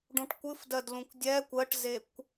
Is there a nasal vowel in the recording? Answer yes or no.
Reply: yes